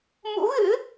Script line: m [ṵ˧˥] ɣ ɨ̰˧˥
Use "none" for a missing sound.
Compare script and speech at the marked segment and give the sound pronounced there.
ṵ˧˥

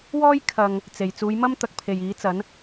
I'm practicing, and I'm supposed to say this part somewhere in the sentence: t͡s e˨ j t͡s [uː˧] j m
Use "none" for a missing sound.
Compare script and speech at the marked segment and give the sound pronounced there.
uː˨˧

